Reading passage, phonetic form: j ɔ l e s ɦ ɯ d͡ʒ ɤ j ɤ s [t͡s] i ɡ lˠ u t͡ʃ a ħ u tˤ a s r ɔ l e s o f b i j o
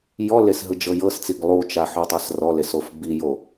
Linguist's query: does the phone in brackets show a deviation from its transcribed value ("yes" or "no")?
no